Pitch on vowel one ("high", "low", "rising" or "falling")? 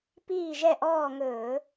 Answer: falling